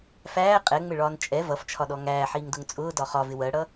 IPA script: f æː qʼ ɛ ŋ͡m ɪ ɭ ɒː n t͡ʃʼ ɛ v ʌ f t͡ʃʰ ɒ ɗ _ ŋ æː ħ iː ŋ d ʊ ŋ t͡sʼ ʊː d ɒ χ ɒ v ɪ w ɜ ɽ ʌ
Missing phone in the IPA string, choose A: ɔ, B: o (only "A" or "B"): A